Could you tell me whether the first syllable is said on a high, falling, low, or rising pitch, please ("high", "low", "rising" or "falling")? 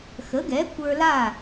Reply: rising